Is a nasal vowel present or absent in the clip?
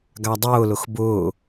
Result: absent